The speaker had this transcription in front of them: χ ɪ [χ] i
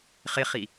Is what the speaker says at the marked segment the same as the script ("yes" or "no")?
yes